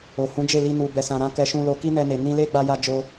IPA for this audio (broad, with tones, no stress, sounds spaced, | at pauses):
o˨ h ũ˨˦ d͡ʒ e˦˨ l i˧ n u˨ b ɛ˨ s ã˨ ɾ ã˧ k ɛ˧ ʃ ũ˧ l o˧ k i˦ n ɛ˧ n e˨ n ĩ˧ l e˦ ɡ͡b a˧ j a˧ d͡ʒ o˧